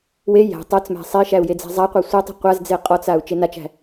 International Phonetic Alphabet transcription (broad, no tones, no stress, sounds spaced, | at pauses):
w e j æ̤ tˤ œ t͡s m æ̤ sˤ e i̯ ʃ æ u̯ j e d͡z æ̤ zˤ a qʷ œ sʷ e tˤ i̤ qʷ a z d͡z e qʼ ɔ t͡s a u̯ t͡ʃ e n a t͡ʃ æ̤